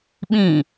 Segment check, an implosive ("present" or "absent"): present